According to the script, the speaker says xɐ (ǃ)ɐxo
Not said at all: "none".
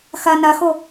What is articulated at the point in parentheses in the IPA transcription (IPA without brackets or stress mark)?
n